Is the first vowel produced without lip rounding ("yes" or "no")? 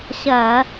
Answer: yes